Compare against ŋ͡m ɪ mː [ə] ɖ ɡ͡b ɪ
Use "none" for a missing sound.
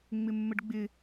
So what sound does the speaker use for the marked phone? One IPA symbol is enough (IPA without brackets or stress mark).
ə